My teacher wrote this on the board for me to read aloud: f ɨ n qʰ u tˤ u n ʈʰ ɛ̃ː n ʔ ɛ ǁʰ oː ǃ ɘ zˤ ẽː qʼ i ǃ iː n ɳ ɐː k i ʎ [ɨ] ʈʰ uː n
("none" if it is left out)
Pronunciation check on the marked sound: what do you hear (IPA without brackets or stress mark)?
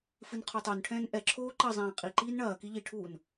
i